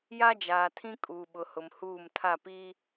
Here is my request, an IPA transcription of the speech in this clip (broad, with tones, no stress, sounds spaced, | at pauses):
j a˦ d͡ʒ aː˨ tʰ ĩ˦ kʼ uː˨ ɓ ʊ˨ h ʊ˨ m h uː˦˨ m tʰ a˦˨ p iː˦